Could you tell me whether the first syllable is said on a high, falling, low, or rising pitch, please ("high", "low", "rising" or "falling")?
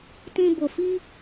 high